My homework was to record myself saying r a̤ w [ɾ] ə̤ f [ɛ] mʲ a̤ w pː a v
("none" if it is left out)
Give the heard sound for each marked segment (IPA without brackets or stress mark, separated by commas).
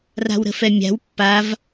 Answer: ɾ, ɛ